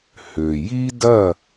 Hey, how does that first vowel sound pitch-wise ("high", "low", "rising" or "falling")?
low